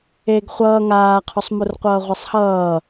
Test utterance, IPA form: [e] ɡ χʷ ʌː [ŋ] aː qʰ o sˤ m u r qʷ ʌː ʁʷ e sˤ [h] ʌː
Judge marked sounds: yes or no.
yes, yes, yes

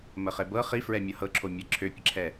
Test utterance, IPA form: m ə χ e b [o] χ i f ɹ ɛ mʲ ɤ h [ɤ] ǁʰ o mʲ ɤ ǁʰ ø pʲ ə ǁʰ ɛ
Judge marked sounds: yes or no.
no, yes

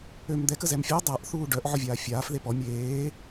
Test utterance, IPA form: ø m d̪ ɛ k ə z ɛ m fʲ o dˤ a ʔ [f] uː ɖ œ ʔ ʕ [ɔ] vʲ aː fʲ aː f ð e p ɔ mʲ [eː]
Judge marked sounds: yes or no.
no, yes, yes

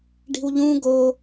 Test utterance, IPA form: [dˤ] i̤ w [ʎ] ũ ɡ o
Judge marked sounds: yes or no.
no, yes

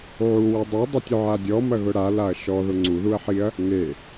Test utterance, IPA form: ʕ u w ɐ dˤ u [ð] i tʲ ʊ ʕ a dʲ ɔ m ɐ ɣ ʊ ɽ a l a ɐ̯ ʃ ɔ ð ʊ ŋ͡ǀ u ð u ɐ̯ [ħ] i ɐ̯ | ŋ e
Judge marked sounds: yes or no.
no, yes

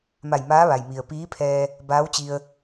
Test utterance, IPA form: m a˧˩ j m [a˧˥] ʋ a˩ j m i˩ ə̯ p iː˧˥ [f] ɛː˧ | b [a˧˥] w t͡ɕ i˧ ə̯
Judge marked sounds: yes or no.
no, no, no

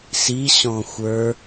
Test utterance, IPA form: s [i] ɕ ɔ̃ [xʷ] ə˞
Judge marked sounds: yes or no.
yes, yes

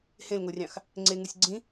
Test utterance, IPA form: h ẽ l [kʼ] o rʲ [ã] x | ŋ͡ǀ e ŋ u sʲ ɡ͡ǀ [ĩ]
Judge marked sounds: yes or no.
no, no, yes

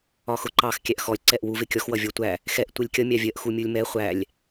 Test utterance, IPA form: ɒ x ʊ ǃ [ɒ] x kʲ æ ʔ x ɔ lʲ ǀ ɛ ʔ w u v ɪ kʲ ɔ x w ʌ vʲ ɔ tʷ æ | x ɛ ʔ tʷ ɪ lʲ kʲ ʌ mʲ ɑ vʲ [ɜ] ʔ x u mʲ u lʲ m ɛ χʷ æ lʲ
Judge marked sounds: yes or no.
no, yes

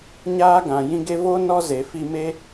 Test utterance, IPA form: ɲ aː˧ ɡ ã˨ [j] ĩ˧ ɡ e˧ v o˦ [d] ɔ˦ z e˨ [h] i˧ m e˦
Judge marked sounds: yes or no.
yes, no, no

